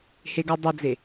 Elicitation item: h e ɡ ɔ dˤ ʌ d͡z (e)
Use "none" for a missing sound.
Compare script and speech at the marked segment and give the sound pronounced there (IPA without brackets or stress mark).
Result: e